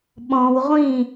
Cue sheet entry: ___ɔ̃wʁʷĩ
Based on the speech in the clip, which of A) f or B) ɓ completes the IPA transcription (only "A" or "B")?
B